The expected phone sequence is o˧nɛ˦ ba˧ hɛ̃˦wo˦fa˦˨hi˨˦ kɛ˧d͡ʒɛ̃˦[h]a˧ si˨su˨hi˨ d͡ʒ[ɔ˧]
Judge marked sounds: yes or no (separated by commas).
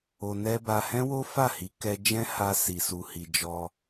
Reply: yes, yes